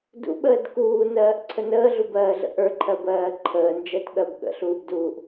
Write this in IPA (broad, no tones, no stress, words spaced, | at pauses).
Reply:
dṵɓəːd kuːnɜːʔǀʰə nəːɮubɜːɮə̰ ʔə˞ǃʰɜbɜː ǃʰəːnd͡ʒɜtɠɜb ɠə̰ɬuːbduːʔ